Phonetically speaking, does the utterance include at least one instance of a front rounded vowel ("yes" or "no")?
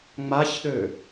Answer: yes